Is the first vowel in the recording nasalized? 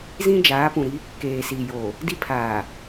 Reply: yes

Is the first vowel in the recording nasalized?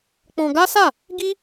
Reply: yes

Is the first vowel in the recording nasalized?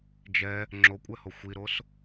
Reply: no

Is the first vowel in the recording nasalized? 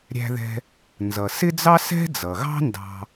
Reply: no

